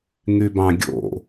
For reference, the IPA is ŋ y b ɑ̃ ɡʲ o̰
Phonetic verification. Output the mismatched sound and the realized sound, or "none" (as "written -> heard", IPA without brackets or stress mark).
none